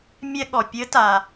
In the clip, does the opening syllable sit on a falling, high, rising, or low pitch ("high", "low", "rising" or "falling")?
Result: high